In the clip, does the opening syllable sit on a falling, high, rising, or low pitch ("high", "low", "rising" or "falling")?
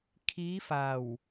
rising